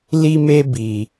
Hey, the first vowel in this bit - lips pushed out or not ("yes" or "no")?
no